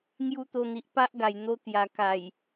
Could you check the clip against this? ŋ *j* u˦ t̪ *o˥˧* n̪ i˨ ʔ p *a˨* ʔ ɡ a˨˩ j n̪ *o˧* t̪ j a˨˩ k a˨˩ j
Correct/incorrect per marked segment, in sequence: correct, incorrect, incorrect, correct

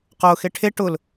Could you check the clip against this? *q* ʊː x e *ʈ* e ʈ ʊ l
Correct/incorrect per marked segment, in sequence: correct, incorrect

